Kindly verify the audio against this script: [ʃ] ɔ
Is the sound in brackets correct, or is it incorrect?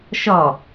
correct